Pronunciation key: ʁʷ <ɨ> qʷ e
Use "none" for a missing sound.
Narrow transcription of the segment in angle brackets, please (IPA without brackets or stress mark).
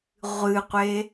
ɨ